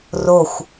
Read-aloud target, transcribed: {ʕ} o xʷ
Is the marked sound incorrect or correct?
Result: incorrect